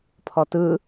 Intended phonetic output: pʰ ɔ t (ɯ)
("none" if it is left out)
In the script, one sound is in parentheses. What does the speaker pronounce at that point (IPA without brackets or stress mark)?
ɯ